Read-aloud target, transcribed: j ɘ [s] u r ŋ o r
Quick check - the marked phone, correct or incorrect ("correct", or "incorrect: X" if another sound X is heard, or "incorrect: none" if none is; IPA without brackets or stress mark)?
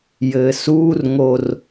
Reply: correct